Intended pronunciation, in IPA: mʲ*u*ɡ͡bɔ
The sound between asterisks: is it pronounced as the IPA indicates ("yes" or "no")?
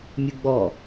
yes